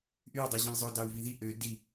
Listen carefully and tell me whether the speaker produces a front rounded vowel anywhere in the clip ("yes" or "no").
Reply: yes